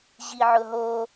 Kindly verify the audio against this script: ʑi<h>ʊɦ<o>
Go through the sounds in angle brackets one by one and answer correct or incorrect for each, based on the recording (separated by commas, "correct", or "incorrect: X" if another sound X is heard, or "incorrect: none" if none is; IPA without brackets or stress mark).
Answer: incorrect: ʕ, correct